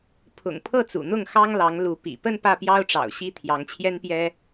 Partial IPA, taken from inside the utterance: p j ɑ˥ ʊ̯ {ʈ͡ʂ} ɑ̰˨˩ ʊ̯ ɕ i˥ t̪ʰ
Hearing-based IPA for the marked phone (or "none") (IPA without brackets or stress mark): ʈ͡ʂ